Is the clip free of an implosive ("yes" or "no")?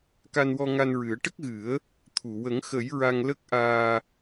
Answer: yes